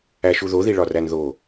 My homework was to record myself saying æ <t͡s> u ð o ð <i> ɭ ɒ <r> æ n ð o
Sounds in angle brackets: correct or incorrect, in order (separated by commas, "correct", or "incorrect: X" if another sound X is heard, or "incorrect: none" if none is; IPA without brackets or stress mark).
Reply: incorrect: ʃ, correct, correct